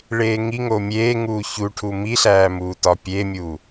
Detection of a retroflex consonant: present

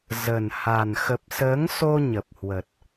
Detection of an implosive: absent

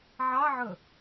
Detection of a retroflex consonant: absent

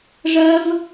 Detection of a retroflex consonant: present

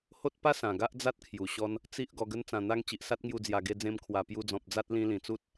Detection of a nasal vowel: present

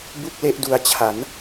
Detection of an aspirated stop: present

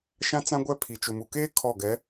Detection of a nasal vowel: present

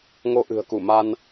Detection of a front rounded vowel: absent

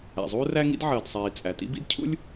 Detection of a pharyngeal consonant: present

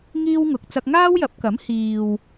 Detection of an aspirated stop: absent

